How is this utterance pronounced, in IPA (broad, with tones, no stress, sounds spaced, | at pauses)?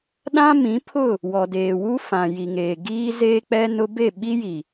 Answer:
ɗ ã˦ m ĩ˨˦ pʰ ʊ˦˨ | w ɔ˨ d eː˨ w u˦ f ã˨ j i˨ ŋ eː˨ ɡ iː˦ z eː˦ k͡p ɛ˦ n ʊ˦ b e˦˨ ɓ i˦ j i˨